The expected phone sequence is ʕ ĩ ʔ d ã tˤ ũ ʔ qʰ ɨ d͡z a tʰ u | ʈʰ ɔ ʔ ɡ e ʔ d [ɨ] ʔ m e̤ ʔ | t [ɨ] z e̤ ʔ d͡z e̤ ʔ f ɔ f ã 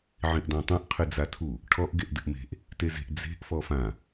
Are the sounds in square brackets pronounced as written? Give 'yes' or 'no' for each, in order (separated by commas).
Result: yes, no